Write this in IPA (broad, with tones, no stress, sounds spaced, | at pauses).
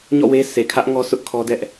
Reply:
ɲ ɔ̰˦˨ w e˦ s e˨ kʰ ä˦ ʔ ŋ ɔ˦ s ʊ˦ ʔ kʰ ɔ˦ d ɛ˦ ʔ